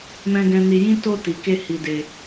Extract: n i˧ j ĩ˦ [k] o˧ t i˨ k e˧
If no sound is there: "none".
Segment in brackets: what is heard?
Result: t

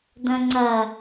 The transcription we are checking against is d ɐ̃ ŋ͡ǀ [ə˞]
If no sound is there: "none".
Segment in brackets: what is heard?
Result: ɐ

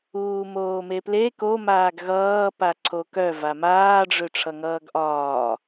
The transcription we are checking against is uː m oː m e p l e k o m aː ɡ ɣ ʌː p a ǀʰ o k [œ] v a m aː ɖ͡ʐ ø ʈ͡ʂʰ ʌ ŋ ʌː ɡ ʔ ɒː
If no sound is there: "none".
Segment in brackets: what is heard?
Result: œ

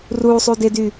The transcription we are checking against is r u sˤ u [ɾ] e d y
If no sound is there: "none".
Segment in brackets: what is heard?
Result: d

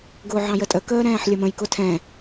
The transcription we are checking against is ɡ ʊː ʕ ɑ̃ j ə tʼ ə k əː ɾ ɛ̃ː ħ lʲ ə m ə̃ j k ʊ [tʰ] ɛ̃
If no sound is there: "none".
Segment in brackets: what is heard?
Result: tʰ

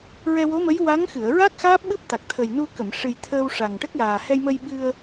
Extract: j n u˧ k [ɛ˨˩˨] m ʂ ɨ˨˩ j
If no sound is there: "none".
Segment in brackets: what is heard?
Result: ə˨˩˨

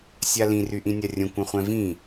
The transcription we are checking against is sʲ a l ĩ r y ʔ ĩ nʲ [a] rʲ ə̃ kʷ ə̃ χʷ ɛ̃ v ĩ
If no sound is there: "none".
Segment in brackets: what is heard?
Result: a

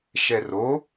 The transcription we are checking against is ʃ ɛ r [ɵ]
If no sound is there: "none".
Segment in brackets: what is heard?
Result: o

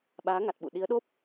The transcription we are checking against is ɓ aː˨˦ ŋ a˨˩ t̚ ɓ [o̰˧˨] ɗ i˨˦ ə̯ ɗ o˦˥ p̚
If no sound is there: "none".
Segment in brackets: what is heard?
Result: ṵ˧˨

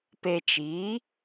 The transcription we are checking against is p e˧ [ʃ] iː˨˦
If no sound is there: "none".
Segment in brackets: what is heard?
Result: t͡ʃ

